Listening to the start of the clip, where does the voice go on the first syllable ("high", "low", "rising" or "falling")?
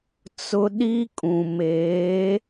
high